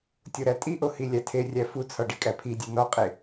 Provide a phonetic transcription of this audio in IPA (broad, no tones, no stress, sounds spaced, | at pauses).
tʲ o ɾ æ tʼ i ʔ o h i lʲ æ tʰ e rʲ æ f u t͡sʰ ɒ ɖ i kʼ æ pʰ i dʲ æ n ɒ qʼ e